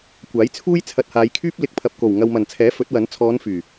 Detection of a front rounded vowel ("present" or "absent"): present